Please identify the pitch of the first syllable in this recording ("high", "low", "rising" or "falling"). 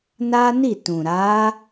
high